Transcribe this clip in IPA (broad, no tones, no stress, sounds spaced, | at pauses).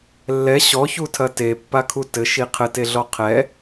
lː ɛ ɕ ɔ ç u tʰ ɐ t e pː a kʰ u t ɘ ʃ i qʰ ɘ t e ɮ ɔ qʰ ɛ